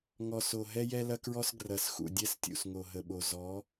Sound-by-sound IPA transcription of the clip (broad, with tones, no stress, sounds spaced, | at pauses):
ŋ ɔ˨ s o˨ ɦ ɛ˦ j ɛ˦ l ɐ˦ k ɹ ɔ˦ s ɡ r ɐ˨˦ s x ṵ˨ dʲ ɛ˦ s tʲ ṵ˨ s ŋ o˨ ɦ ə˨ ɓ o˨ z ɔ˨˦